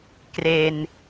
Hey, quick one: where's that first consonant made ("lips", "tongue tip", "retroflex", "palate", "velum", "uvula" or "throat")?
velum